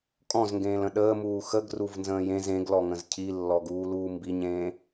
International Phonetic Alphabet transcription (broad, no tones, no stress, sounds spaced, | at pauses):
kʼ ɔ̃ z ŋ ɡ ẽː l ə̃ ɗ əː m uː x ə ɡ r u v n z ə̃ː j ẽ z ẽ ɡ l ɔ ŋ ə̃ z cʰ i lː ɔ ɡ uː l uː m b i ɲ ẽː